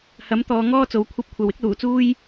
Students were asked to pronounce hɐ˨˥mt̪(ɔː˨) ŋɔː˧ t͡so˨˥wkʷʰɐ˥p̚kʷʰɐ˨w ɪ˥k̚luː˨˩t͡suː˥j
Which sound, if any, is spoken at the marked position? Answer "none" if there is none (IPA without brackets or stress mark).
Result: ɔː˨